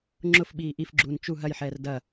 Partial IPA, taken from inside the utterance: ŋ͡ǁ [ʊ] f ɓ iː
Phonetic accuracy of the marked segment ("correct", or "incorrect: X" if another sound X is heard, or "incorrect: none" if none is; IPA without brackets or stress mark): correct